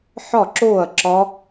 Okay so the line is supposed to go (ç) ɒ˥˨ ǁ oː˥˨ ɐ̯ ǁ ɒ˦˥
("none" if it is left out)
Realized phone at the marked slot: ħ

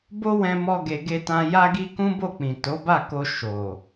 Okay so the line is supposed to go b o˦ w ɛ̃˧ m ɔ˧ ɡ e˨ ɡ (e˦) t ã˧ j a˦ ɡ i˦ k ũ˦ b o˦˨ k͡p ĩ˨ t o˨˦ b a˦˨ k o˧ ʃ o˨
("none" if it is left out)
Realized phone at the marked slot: e˧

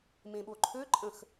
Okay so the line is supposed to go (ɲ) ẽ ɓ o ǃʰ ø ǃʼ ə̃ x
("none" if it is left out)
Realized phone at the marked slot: m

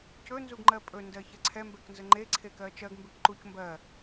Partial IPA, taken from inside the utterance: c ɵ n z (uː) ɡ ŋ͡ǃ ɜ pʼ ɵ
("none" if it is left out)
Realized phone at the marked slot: u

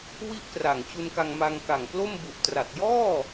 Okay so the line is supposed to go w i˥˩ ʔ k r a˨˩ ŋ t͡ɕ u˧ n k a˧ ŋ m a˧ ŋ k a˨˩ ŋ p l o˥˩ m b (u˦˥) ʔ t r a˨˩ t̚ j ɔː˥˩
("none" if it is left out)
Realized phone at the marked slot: u˨˩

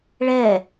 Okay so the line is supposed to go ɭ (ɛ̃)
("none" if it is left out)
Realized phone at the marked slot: ɛ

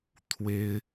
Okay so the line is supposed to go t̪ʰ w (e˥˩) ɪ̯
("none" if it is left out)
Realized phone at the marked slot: e˥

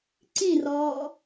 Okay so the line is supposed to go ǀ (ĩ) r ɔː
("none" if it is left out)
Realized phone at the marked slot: ĩ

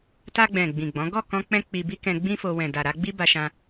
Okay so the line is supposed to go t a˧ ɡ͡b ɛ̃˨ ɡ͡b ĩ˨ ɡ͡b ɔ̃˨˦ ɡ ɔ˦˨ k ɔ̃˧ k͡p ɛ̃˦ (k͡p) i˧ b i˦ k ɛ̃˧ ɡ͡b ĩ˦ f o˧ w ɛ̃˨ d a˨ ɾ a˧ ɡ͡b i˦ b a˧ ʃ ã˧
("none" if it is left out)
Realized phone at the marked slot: k͡p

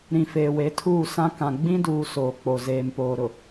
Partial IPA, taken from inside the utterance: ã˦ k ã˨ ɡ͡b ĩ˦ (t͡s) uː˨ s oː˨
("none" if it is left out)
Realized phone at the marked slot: d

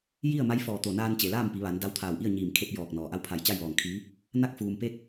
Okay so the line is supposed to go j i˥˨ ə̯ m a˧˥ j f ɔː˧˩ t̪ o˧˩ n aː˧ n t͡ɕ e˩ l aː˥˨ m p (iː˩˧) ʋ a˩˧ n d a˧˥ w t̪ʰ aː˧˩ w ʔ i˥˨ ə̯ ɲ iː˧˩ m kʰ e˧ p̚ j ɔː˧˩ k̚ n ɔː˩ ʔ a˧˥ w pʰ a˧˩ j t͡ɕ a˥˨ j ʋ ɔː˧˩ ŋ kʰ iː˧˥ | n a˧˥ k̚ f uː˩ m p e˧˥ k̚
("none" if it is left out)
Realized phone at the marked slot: i˩˧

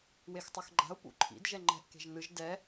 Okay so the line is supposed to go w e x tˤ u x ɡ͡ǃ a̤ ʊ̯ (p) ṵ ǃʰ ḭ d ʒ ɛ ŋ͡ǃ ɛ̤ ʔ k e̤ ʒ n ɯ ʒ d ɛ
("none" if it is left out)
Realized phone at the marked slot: p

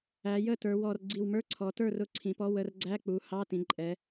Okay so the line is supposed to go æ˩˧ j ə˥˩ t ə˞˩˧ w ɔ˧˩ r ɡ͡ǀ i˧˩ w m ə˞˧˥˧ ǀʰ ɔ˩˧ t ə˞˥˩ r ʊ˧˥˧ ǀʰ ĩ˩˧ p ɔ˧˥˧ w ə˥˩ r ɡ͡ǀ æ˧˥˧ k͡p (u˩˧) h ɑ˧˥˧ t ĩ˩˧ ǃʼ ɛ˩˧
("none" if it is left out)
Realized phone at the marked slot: u˩˧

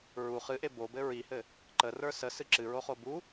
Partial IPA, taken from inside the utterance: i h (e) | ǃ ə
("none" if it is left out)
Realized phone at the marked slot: ɘ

